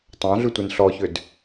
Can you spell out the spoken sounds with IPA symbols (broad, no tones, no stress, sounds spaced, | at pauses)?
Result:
tˤ ɑ̃ ɮ ʉ tʷ e n ɬ ɔ ç ʏ d